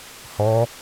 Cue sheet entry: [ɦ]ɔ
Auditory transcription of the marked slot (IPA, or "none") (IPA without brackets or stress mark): h